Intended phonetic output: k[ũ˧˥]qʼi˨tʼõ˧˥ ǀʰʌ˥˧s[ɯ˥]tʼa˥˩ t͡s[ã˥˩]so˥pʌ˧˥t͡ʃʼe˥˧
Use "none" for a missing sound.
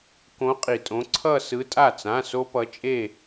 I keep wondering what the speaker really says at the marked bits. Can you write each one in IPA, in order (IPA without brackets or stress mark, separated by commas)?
õ˧˥, ɯ˧˥, ã˧˥˧